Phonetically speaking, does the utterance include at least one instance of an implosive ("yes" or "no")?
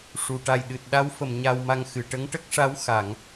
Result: yes